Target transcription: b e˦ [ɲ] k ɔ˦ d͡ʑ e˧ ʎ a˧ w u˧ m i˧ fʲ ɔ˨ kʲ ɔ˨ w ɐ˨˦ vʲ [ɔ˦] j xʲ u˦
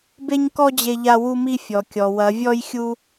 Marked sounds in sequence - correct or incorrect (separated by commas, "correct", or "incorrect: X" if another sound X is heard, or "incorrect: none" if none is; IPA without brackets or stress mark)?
correct, correct